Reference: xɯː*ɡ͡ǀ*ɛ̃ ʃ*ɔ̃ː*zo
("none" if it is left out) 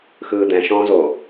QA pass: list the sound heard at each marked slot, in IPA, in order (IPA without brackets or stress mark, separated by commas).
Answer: d̪, ɔ̃ː